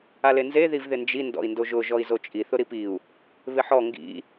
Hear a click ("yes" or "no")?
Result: no